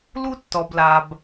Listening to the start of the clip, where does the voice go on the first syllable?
high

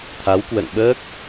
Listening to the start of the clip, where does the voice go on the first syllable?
rising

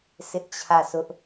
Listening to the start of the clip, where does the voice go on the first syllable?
high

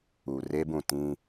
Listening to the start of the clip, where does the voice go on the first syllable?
low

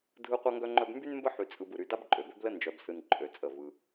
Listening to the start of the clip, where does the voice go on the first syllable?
high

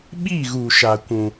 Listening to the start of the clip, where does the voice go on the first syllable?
falling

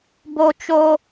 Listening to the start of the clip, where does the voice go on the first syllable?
high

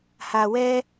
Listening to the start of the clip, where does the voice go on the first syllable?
low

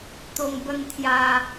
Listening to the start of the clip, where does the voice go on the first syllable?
low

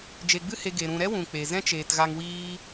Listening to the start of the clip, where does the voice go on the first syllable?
low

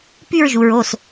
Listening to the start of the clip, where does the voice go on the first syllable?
falling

